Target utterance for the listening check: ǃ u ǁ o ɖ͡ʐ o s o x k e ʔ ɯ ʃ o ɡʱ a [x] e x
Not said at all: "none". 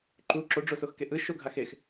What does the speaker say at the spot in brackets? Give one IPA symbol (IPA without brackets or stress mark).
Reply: x